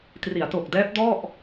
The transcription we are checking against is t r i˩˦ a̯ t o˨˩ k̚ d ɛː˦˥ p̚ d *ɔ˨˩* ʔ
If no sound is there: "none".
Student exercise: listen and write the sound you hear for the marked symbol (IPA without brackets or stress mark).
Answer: ɔ˥˩